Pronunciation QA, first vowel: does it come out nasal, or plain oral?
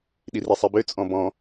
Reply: oral